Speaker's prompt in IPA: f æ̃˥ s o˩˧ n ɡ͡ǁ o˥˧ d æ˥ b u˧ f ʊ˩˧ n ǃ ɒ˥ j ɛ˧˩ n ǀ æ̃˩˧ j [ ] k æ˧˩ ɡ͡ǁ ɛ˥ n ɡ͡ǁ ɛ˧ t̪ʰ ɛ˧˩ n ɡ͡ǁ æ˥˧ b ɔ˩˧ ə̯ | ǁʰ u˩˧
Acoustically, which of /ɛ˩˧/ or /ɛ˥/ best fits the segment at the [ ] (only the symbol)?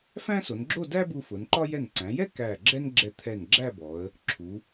ɛ˥